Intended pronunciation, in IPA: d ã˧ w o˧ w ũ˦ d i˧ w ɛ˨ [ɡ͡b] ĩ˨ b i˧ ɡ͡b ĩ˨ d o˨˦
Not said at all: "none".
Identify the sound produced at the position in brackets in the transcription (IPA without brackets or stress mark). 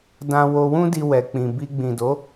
k͡p